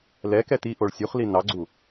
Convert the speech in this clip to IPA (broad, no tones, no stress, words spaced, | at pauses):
lɛkɛ tiʔoɭ sʲuχli nɑɡ͡ǀu